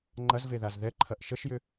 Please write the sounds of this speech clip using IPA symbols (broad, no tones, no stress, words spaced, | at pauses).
ŋ͡ǃɐzveðaz ðɛǃʰɐʔ ʃəʃjʏ